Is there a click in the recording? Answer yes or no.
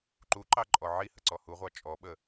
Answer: yes